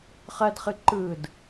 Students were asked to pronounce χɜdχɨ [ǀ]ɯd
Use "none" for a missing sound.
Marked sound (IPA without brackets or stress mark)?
ǃ